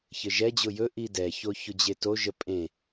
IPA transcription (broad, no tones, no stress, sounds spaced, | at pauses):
ç ɘ ʒ ɛ d͡ʑ ʊ j ɵ ʔ i d ɛ ç o ç ʊ d͡ʑ e t o ʒ ə pʼ ẽ